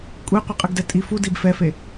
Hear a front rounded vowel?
no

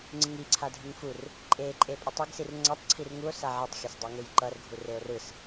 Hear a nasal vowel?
no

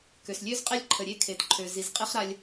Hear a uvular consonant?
yes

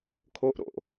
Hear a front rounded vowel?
no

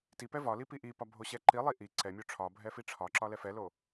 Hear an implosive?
no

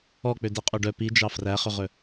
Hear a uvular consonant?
yes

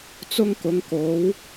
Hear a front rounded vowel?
no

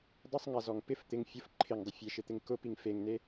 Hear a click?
yes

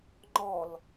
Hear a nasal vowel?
no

